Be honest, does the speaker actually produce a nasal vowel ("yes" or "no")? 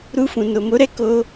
yes